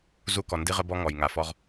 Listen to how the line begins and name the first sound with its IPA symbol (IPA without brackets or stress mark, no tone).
z